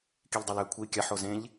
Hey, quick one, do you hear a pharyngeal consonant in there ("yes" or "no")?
yes